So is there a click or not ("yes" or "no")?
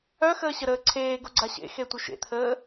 yes